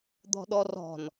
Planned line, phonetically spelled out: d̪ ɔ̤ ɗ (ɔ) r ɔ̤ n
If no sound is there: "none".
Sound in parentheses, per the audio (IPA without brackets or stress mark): ɔ